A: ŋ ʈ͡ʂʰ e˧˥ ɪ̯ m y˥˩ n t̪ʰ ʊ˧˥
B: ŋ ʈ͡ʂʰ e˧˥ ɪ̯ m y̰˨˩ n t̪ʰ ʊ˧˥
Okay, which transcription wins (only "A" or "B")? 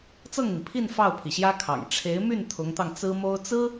A